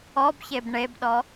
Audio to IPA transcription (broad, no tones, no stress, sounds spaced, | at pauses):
ɔ b ç e b ɳ e b ɗ ɔ